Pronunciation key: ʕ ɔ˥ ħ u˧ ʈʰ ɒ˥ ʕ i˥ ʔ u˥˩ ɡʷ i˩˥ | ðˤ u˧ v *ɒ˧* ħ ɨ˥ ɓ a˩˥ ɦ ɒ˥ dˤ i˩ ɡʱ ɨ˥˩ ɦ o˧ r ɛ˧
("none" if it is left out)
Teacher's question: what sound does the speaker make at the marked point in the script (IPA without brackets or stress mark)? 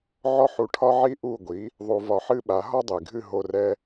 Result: ɒ˧